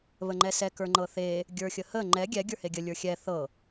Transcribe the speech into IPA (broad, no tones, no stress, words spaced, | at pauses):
βəŋ͡ǃɛsɛ kə˞ŋ͡ǃɤθe | ɡʲə˞xʲəhə ŋ͡ǃɛ ɡʲɛ ɡʲə˞heɡʲə lʲə˞xʲɛ θɤ